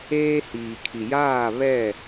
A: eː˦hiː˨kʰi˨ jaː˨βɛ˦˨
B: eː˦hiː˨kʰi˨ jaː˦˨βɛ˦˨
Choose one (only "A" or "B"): B